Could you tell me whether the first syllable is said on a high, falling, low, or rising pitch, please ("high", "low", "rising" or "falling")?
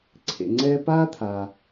low